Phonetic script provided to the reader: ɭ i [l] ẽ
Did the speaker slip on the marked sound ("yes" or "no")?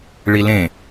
no